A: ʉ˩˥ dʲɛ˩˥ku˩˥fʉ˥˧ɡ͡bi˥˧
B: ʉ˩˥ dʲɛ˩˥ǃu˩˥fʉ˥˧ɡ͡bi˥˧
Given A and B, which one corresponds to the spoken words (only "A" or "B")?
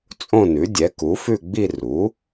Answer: A